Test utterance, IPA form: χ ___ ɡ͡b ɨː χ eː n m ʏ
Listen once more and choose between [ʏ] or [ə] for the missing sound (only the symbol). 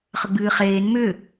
ə